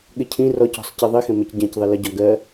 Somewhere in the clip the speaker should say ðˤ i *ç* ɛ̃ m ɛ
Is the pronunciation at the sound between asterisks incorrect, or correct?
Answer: incorrect